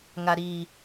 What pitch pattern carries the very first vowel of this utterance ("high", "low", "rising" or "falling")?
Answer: low